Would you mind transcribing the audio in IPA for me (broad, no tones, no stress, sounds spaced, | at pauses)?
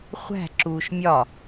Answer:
χʷ æ̤ ǁ uː ʃ mʲ ɒ